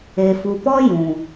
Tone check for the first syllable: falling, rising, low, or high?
low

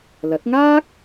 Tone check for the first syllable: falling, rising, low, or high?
rising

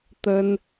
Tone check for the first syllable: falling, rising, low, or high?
high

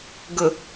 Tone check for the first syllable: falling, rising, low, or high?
low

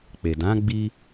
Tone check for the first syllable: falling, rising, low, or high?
low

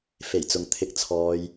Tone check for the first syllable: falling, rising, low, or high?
low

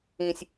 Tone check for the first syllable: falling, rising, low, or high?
high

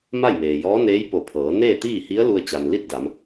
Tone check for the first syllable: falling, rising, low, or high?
falling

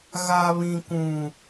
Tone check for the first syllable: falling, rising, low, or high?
high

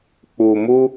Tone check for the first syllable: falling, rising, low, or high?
low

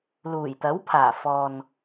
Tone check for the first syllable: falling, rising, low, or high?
low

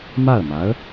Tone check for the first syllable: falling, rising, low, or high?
falling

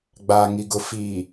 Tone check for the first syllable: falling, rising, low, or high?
low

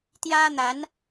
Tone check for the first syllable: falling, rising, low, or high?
high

